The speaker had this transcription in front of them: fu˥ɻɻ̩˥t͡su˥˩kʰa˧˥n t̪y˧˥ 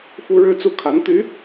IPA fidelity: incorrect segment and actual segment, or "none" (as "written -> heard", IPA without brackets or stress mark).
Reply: none